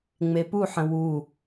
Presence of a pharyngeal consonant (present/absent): present